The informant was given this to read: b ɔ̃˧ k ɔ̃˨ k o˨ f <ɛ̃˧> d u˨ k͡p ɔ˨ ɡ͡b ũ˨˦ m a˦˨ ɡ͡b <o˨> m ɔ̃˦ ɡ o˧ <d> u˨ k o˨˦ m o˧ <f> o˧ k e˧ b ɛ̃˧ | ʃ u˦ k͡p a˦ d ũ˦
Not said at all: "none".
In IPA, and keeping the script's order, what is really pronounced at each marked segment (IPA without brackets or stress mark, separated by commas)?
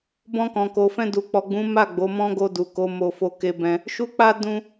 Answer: ɛ̃˧, o˨˦, d, f